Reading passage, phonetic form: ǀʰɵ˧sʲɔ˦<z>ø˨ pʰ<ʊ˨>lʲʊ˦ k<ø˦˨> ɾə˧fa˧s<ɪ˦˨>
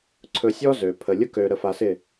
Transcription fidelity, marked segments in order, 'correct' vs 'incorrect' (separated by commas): correct, incorrect, incorrect, correct